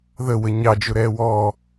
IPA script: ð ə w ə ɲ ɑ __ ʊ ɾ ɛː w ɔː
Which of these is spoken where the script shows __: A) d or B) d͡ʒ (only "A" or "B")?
B